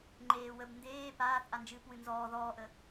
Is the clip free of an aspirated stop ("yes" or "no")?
yes